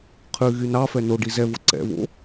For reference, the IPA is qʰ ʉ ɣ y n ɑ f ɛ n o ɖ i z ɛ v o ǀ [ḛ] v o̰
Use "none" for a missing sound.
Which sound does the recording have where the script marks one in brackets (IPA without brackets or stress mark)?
ɛ̰